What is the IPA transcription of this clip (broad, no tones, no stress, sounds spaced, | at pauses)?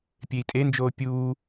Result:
pʲ e i̯ tʼ e n d͡ʒ oː pʲ uː